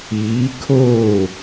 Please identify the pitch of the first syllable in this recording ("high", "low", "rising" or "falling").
rising